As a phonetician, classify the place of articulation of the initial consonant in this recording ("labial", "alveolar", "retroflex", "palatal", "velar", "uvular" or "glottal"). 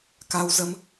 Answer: velar